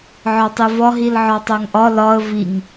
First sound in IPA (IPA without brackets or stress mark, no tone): ʕ